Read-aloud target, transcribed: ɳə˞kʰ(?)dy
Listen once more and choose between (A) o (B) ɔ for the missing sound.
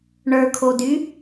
A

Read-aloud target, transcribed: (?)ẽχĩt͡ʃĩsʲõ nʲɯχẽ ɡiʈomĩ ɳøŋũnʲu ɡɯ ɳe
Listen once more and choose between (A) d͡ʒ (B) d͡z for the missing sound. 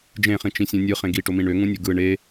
A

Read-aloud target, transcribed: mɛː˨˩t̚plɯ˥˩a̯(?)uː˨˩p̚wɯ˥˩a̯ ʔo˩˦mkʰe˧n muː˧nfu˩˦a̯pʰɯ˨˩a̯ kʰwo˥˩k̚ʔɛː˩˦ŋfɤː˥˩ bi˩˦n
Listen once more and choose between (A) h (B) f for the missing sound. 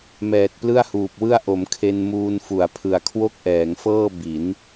A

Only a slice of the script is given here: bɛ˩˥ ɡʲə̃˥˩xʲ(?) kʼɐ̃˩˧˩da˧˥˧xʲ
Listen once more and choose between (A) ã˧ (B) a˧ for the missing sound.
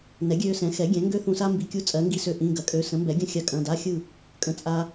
B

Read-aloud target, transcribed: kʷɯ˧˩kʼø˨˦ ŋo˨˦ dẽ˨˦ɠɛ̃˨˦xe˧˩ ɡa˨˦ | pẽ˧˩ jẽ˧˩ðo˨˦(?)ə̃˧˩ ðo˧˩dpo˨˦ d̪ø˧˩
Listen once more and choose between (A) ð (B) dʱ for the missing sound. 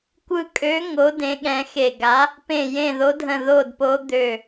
B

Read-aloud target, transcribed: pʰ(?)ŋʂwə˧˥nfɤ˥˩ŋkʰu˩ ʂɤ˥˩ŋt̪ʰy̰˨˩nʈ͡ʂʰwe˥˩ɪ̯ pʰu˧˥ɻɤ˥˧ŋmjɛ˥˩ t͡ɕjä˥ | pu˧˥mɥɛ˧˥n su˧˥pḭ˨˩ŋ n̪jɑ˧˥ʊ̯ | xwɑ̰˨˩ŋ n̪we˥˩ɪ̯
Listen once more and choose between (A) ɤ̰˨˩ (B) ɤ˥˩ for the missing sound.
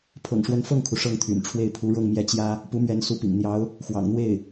A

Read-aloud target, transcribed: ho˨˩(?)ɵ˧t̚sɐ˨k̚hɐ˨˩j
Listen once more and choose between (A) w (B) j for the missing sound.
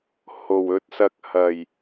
A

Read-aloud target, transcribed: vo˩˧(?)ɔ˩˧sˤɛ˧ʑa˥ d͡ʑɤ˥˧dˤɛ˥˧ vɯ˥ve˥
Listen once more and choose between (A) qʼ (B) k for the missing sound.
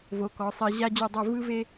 B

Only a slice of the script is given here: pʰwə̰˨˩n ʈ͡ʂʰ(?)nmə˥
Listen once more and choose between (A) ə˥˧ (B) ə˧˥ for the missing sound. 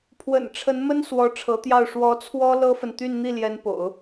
B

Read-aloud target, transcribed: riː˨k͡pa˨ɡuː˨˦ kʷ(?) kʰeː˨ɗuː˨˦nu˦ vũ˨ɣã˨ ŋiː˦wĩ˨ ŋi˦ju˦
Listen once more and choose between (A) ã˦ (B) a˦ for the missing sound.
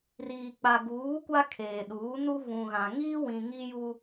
B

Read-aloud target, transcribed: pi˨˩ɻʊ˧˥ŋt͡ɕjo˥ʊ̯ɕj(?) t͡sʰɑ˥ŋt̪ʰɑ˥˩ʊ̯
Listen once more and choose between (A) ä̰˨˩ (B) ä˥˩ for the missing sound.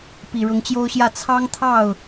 B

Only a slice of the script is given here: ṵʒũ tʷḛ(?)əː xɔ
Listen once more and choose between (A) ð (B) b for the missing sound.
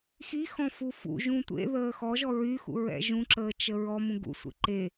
A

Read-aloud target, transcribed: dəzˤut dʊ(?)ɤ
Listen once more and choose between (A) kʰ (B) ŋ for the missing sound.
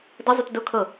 A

